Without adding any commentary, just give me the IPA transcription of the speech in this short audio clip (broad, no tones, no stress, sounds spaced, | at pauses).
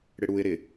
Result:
ɽ ɪ ɽ u ɪ̯ ɾ ɪ